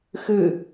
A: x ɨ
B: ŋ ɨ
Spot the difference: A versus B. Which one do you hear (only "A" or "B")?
A